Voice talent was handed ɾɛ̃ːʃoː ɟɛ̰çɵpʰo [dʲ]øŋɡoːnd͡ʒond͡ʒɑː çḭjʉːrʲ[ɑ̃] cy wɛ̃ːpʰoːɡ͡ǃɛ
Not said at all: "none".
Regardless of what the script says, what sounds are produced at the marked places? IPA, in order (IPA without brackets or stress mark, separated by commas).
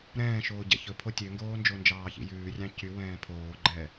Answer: tʲ, ɑ̃